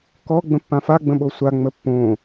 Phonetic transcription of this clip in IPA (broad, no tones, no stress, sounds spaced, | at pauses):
k ɔ ɡ͡b ə̃ pː ã f a ɡ͡b ə̃ ɓ o sʷ a ŋ͡m ə pː õ